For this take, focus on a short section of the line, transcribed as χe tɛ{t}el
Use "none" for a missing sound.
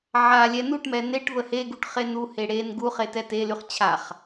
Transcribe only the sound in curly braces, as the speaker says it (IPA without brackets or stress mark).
t